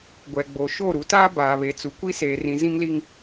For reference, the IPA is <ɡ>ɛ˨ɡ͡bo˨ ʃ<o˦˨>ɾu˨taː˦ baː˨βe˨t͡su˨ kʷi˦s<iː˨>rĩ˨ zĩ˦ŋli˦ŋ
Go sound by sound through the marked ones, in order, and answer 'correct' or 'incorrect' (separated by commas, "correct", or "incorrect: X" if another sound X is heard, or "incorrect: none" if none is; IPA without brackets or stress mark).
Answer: incorrect: ɡʷ, correct, incorrect: eː˨